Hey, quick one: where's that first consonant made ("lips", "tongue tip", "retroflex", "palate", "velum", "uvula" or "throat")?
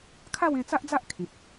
velum